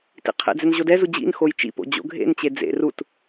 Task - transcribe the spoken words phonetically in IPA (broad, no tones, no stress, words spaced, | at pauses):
tḭqʰḛd͡zɛn ʑodɛzu d͡ʑḭn xojt͡ʃḭpo̰ d͡ʑo̰ɡʱḛnt͡ɕe d͡zḛ rut